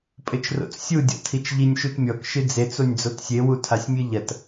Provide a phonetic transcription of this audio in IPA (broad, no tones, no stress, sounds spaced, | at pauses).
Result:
pʼ ɘ t͡ʃ r o̰ t͡s sʲ u dʲ ɔ̰ tʰ i t͡ʃ ʎ i nʲ ʃ u t mʲ ɔ k ʃ ɨ d͡z e t͡s o nʲ d͡z o t sʲ e w u tʰ a sʲ mʲ ɨ ʎ ɐ t